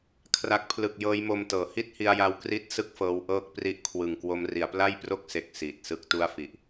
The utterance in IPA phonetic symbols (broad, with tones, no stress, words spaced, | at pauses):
kʰra˨˩k̚pʰlɯ˨˩k̚ jɤː˦˥jmo˧mtɤː˩˦ hi˥˩t̚hi˧a̯ja˧w kri˥˩t̚sɯ˥˩k̚ fɤː˦˥wʔɤː˥˩k̚ pri˦˥ʔkʰwɯ˨˩ŋkwo˦˥m ri˩˦a̯pla˥˩jpro˥˩k̚ se˦˥k̚siː˨˩t̚ sɯ˦˥k̚tu˥˩a̯fi˨˩ʔ